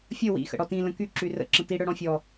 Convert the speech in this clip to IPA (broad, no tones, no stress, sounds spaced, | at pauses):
fʲ ə w ḭ x ə̰ ɽ ɔ t ĩ l ə̃ k y ǁ y r ə̰ ǁ ə̃ t i ɽ œ ɽ ɔ̃ fʲ ɔ